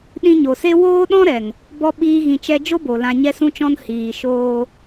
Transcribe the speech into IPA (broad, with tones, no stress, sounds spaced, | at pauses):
ɗ ĩ˧ ɲ o˨ s e˦ w oː˦ ɗ ɔ̃˦ ɾ ɛ˨ ŋ | b ɔ˦ ɓ iː˦ ɣ ĩ˧ t͡ʃ ɛ˦ d͡ʒ o˦ b o˨ l ã˧ ɲ ɛ˦ s ũ˦ t͡ʃ ɔ̃˦ n h iː˨ ʃ oː˧